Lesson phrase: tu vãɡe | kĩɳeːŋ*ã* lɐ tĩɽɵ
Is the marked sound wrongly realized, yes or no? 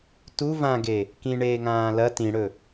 yes